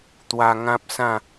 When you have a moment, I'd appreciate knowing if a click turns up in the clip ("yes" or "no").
no